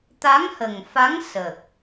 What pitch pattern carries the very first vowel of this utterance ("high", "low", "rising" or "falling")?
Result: rising